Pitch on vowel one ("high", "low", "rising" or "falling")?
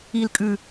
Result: low